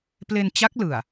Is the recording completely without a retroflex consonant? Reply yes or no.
yes